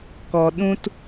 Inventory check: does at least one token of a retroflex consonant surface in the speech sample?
no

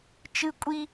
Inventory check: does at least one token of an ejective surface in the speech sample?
yes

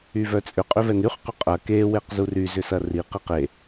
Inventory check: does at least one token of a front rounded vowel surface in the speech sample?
yes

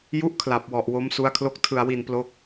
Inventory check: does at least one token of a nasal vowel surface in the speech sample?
no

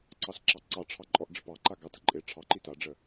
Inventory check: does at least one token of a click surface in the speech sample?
yes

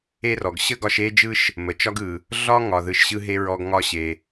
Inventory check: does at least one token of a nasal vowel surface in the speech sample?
no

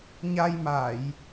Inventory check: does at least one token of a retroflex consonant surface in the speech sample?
no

